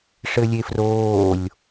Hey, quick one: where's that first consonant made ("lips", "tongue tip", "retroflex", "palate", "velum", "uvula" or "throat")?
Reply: retroflex